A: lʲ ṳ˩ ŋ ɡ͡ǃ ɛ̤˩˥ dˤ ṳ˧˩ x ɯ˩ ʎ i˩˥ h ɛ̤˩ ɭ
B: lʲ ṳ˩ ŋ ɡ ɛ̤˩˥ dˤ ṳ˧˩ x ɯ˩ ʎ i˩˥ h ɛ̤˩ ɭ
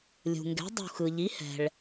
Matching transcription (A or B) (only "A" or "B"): B